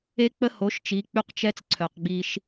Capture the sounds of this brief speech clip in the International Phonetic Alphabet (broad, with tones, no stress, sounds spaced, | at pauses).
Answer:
e˦ k͡p ə˦ h o˨˦ ʃ t͡ʃ i˨˦ k͡p y˦ q t͡ʃ ɛ˦ t͡s ǀʰ œ˨ q ɡ͡b i˦ ʃ